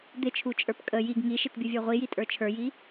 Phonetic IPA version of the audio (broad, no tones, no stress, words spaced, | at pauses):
d̪ɪt͡ʃʰut͡ʃʼə˞p kʼə jiɡ ŋiʃɪtbʲuvʲə˞ ʁʷijitʼə˞ t͡ʃʰə˞ji